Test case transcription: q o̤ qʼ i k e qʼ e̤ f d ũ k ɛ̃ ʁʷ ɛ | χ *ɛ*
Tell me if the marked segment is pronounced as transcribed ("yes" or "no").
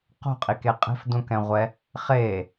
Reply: no